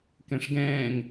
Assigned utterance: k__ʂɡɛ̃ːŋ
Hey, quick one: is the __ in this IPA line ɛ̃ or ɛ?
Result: ɛ̃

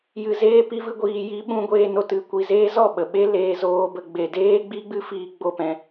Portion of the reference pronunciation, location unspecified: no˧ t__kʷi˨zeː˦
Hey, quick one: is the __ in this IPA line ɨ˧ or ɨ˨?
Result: ɨ˨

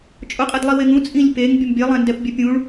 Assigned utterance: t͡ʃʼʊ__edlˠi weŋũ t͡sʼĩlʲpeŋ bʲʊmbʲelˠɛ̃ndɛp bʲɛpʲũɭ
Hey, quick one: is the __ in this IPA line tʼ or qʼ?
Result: qʼ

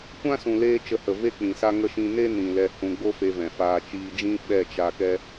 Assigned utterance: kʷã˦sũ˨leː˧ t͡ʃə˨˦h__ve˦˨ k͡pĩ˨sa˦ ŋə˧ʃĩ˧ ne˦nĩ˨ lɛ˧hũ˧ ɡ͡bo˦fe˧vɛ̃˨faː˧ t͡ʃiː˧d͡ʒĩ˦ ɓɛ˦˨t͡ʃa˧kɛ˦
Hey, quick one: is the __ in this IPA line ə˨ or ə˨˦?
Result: ə˨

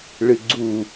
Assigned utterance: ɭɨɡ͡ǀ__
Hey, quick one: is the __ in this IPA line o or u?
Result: u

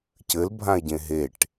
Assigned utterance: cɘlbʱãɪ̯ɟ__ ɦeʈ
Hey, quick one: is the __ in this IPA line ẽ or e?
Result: ẽ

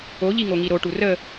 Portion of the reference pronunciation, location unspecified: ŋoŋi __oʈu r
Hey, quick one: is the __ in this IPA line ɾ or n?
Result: ɾ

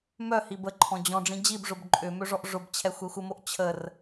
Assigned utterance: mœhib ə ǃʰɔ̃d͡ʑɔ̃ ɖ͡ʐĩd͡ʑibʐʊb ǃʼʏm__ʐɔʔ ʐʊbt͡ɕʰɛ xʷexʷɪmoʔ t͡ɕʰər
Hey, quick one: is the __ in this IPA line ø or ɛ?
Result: ø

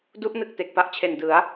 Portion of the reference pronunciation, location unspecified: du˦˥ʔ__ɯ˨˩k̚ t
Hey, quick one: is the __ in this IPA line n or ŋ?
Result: n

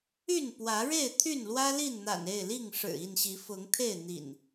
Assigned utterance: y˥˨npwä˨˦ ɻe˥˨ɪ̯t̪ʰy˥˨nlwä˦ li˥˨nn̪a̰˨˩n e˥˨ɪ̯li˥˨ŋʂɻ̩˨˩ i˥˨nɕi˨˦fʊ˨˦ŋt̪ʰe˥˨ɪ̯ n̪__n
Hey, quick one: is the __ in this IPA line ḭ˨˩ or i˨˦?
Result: ḭ˨˩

